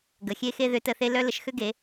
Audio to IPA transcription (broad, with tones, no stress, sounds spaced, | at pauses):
ɡ ə˩ xʲ e˥ x e˥ ð ʏ˧˥ t ə˧ θ e˥ l œ˥ l ə˧ ʃ x ʏ˥ ɡ e˩˧